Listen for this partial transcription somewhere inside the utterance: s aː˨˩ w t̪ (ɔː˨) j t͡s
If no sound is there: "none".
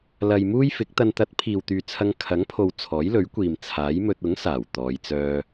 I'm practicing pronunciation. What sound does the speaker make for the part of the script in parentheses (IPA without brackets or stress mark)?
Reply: ɔː˨˧